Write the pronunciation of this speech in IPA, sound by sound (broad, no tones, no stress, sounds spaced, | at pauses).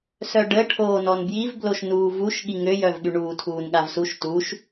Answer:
s œ ɖ ə ʈʰ oː n ɔ n b j i v b l o ʃ n uː v u ʃ ɠ i ŋ ø j œ v ɠ y ɳ uː tʰ uː n ɠ a v s u ʃ t uː ʃ